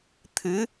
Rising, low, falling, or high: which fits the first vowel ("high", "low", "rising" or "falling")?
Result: rising